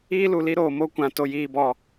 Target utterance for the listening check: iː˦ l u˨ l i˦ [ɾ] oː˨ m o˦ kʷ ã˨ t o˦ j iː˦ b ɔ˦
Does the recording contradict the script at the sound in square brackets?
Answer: no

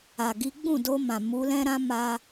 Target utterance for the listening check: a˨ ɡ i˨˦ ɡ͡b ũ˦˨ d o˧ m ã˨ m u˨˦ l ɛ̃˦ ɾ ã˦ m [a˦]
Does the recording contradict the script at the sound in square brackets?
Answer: no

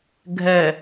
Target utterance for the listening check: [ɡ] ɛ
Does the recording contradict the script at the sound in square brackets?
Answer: yes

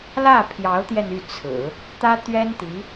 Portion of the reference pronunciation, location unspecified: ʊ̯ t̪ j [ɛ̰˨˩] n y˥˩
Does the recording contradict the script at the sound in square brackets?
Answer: yes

